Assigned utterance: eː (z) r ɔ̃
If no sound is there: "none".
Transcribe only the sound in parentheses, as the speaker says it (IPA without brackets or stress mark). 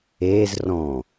z